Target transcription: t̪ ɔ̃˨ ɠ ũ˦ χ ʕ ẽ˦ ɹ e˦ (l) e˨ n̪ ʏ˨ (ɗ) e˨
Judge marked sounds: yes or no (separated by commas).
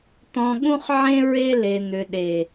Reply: yes, yes